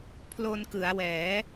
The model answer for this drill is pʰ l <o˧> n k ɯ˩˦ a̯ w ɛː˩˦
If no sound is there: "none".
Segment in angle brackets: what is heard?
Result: o˧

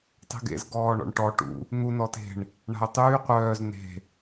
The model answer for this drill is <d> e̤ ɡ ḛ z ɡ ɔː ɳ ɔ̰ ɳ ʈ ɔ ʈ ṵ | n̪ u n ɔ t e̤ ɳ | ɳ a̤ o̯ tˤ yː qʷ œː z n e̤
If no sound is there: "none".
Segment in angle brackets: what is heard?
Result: tˤ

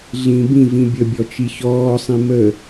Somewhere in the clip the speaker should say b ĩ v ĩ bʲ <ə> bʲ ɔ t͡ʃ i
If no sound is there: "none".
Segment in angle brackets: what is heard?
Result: ə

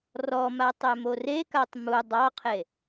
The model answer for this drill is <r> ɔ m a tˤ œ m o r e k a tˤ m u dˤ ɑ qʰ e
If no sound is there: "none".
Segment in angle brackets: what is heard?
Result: r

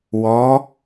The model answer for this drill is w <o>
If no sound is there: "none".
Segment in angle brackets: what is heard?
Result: ɔ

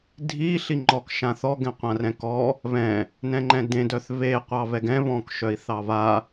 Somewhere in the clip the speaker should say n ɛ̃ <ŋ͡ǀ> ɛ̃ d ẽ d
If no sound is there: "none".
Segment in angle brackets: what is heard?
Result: ŋ͡ǃ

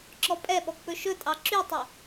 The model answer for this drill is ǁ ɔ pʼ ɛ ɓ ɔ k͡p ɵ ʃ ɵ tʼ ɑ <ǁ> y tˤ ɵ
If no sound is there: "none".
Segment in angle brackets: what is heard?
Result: ǁ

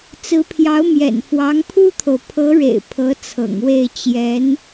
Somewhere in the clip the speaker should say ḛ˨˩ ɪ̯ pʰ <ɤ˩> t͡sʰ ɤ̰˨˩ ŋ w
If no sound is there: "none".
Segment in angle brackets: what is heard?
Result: ɤ˧˥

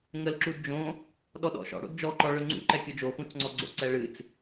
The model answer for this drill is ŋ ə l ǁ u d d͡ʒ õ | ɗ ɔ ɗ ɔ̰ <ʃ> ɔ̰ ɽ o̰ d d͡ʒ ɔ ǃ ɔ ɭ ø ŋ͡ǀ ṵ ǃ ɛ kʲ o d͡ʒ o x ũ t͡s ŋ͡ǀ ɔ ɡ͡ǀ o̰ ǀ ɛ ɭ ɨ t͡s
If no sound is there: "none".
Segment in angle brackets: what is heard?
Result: ʃ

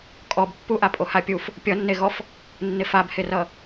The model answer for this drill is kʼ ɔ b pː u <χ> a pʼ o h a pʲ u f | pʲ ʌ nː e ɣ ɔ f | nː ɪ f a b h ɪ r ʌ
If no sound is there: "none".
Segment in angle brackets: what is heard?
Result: ʔ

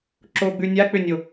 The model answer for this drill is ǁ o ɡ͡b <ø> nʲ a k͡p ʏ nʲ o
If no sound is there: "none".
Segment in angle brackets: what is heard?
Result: ʉ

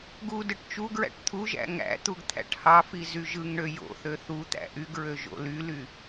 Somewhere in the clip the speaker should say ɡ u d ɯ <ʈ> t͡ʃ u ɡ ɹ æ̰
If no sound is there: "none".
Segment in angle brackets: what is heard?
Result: ʈ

